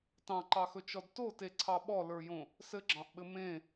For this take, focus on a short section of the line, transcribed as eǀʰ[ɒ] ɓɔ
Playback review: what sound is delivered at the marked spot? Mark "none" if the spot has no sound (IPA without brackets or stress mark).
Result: ɑ